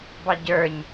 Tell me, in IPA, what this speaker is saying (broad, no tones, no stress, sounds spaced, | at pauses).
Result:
b ɑ ɟ ə˞ ɲ